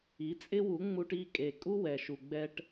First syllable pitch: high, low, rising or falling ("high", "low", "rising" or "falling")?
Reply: rising